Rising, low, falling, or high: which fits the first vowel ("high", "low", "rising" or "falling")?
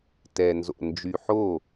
low